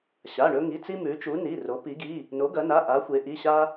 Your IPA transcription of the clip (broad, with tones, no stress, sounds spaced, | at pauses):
ɕ a˩˧˩ ɳ ɵ˧ ŋ i˩˧˩ t͡s i˧ m ʉ˩˧ t͡ʃ u˩˧ n i˩˧˩ r o˩˧ p i˩˧ ɡ i˩˧˩ | n o˩˧ ɡ ɐ˩˧ n a˩˧˩ ʔ a˩˧ xʷ e˩˧ ʔ i˩˧˩ ɕ a˧